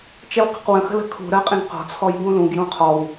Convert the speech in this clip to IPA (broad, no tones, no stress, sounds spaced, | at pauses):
t͡ʃ ɛ w q ə̤ q w ə̃ x ə̤ l ə̤ kʰ ṳ ɾ ɜ qʼ ĩ ɡ q ɔ̤ t͡sʰ ɔ j ɡ ũ l ũ ɡ j ũ qʰ ɔ w